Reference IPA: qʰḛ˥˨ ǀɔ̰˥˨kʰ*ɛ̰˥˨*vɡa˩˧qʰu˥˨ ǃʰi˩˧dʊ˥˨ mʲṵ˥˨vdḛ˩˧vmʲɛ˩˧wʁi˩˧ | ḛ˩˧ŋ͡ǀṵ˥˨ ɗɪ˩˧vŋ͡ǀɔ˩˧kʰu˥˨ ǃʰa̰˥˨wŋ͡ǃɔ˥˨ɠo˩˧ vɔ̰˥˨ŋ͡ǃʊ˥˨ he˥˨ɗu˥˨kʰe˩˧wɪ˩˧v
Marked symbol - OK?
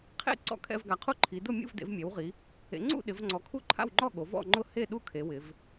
yes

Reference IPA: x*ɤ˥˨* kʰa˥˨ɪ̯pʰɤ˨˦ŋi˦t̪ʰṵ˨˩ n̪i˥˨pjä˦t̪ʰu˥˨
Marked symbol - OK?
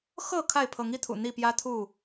yes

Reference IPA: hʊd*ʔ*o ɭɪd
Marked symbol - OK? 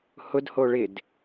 no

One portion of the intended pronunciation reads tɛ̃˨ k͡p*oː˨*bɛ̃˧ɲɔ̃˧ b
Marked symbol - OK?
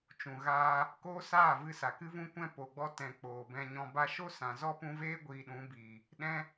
yes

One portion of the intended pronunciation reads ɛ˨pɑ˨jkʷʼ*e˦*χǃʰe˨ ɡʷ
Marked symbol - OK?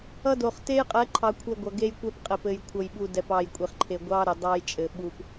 no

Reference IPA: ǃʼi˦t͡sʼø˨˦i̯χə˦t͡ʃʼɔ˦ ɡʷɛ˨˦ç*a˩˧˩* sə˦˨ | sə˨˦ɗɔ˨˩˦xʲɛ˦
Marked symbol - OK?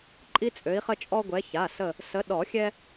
yes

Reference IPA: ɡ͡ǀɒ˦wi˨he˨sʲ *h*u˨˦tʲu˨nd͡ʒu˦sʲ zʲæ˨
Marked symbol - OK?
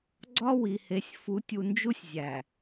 no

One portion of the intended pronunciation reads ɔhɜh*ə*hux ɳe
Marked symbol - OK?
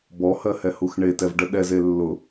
no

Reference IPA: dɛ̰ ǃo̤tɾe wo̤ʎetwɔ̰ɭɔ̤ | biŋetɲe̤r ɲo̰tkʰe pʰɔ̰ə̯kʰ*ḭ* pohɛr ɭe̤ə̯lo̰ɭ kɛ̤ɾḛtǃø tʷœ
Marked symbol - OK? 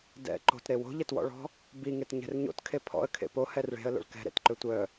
no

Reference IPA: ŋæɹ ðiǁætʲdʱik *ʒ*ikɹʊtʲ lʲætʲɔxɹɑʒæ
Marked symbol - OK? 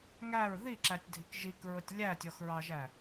yes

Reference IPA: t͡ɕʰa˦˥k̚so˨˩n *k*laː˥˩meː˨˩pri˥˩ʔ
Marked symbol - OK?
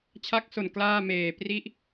yes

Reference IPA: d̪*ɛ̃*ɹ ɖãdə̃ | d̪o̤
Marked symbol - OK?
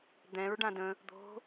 yes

